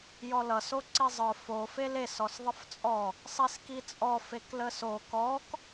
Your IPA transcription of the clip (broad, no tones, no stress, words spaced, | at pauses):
jɔlʌ soǀizˤə˞ fo feles ɔsðˤəft͡sʼɔ | sˤiskit͡sʼɔ fekləso kɔk